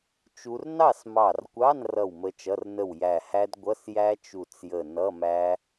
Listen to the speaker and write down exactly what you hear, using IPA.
t͡ʃ u˦˥ r n ɑ˥˨ s m ɑ˧˩ r kʷ ɑ˧˥˧ n r ʌ˥˨ w m ə˦˥ t͡ʃ ʌ˧˥˧ r n ə˥˨ w j æ˧˩ h æ˦˥ d ɡʷ ʌ˧˥˧ s j æ˦˥ t͡ʃ u˧˩ t͡s j ə˧˩ n ʌ˧˥˧ m æ˦˥

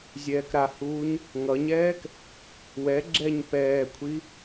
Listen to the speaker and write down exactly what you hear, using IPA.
zʲ ɛː k ɾ a h uː ɲ | ŋ ʌ ɲ ɛː k | w ɛ ɡ͡ǁ ɛ ɲ p ɛː kʷʰ i

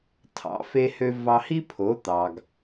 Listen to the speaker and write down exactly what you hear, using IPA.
tʰ ɑ̰˩˥ f e˧ h ø˧ v ɑ˧ h i˥ pʰ o˩˥ t̪ ɑ˩ ɡ

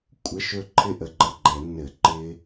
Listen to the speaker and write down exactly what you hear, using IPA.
kʷʼ ə˧˥˧ ʃ ɵ˥˨ ǃʰ ɪ˥˨ ʔ ə˧˩ ɡ͡ǃ ə˥˨ ɡ͡ǃ ɛ˧˩˧ nː ɘ˧˩˧ ǃ ɪ˦˥

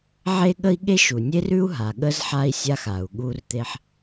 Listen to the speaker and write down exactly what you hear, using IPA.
ʕ e˥ ɠ ə˥ i̯ ɠ e˥ ʃ u˩ nʲ e˥ r ʉ˥ u̯ ɦ a˩ ɠ ə˥ z ħ a˥ i̯ sʲ a˥ x a˩ u̯ ɠ u˥ r t̪ e˥ ħ

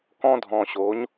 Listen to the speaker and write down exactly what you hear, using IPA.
k ɔ̃˧ dʱ ɔ̃˨ ɕ o˨˦ ɲ

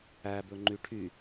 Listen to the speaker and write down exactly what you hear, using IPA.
æ b ɵ ŋ͡ǃ y ʈʰ y

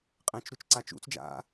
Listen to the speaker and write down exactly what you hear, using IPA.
qʼ ẽ t͡ʃ ɾ u t͡ʃ ǀ a t͡ʃ ṵ t͡s d͡ʒ a̰

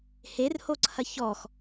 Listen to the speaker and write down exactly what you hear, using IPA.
h e r h o ǀʰ ɐ ç ɔ x

